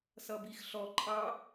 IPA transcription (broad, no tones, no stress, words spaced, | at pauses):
sʌbixɬɔ ǃʼɑ